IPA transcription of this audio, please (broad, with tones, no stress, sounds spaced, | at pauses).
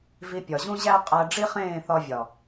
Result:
v i˧ pʲ ɒ˨ ʑ ũ˦ ʑ æ˦ qʼ æ˧ ɖ͡ʐ i˦ χ ẽː˦˨ θ ɒ˧ vʲ ɒ˨